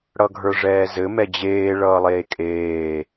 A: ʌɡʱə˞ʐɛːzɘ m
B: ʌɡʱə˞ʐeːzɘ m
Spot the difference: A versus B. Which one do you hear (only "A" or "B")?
A